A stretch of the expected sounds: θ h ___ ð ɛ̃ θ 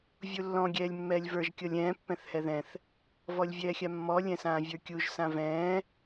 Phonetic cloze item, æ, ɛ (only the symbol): ɛ